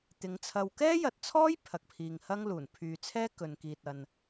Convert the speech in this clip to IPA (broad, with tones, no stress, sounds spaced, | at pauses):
t̪ ɪ˨˧ ŋ t͡sʰ ɐ˧ w k ɛː˥ j ɐ˨ t̚ t͡sʰ ɔː˥ j pʰ ɐ˨ k̚ pʰ iː˨ ŋ h ɐ˥ ŋ l uː˨˩ n pʰ yː˨ t͡sʰ ɛː˥ k ɵ˨ n k iː˨ t̚ ɐ˨ n